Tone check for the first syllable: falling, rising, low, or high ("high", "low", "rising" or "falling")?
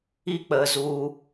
high